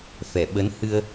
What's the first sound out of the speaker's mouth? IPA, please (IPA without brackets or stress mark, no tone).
f